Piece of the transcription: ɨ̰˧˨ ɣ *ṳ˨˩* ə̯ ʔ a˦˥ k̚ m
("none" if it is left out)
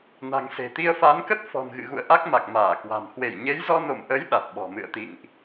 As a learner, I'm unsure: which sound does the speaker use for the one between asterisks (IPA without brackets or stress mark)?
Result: ṵ˧˨